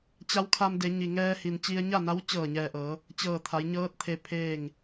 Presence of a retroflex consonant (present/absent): absent